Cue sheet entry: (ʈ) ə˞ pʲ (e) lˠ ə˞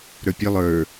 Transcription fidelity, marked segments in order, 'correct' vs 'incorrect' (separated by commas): incorrect, correct